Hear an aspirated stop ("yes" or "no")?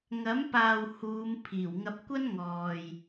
yes